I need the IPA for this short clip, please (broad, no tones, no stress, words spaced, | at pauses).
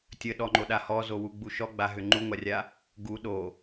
tʲəɗɔŋ͡ǃoɗa hɔzowuɡ͡bu ʃɔɡ͡baɦʏ ŋ͡ǃuŋʷarʲa | ɡu ɗo